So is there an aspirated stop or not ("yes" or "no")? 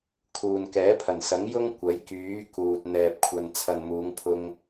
yes